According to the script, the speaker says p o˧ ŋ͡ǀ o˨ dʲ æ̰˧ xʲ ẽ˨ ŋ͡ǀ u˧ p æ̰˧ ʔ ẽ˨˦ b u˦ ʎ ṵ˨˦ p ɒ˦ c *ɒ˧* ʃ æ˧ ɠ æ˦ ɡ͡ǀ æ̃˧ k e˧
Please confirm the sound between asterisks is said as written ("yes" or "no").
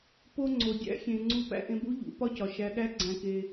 no